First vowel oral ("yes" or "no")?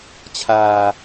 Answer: yes